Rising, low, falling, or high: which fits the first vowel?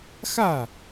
falling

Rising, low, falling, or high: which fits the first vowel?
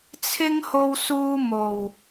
high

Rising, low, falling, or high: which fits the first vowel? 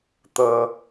low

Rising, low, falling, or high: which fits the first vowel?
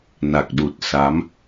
low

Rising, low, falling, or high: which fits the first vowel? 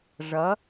rising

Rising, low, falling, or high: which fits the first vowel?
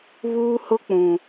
high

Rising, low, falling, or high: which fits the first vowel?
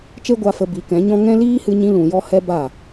high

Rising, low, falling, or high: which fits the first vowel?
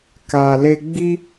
low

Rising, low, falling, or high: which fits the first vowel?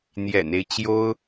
low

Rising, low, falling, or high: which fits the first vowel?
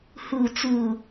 low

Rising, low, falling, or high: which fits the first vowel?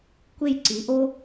falling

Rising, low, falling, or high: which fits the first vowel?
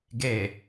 low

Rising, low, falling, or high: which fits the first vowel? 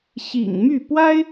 low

